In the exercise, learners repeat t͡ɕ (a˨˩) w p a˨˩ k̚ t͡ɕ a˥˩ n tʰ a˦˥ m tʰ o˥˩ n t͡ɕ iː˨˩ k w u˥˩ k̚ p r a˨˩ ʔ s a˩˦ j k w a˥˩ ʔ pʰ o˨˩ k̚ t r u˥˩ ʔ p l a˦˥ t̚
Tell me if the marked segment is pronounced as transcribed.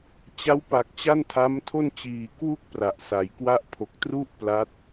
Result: no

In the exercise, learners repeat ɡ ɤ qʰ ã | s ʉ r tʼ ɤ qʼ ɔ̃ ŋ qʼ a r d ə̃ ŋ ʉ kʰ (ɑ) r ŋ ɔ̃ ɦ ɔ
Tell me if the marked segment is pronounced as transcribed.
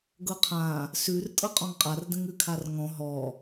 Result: no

